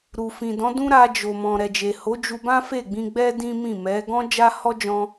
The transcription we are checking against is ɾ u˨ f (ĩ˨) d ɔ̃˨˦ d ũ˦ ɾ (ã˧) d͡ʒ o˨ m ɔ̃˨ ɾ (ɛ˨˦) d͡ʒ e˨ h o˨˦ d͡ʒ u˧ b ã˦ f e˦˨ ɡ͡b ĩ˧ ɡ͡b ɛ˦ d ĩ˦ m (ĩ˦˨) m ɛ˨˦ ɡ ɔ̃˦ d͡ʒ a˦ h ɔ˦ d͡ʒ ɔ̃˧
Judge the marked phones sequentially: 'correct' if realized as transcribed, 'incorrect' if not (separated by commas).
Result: correct, incorrect, incorrect, correct